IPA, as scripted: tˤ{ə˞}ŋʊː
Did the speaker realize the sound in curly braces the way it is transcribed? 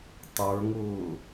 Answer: yes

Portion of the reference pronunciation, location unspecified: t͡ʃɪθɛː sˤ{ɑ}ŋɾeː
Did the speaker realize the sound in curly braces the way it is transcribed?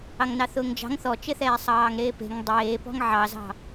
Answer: no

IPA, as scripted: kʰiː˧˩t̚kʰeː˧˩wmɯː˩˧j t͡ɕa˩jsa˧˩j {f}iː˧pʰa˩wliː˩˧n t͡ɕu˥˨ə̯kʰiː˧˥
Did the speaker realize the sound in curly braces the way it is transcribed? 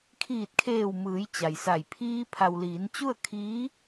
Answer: no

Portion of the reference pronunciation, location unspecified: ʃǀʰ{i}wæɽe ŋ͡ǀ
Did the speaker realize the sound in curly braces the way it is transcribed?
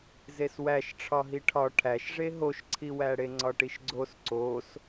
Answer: yes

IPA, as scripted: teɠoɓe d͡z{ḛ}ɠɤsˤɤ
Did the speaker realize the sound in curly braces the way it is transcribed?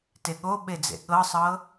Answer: yes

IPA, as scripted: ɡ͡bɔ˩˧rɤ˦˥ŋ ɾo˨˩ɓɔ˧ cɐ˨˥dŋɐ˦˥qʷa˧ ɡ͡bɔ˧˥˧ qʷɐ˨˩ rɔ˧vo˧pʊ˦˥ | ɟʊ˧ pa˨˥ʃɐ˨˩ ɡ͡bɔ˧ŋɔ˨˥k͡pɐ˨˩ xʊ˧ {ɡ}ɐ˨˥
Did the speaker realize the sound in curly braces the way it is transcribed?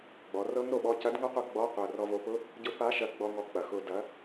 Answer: no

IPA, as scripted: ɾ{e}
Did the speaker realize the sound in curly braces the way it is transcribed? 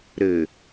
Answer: no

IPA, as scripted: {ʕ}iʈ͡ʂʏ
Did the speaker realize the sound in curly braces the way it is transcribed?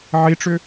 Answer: yes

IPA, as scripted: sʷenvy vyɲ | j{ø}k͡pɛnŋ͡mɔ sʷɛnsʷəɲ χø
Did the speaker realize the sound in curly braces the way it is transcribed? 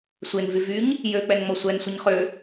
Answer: yes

